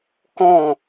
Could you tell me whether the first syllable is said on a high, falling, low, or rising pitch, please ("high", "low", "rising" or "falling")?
falling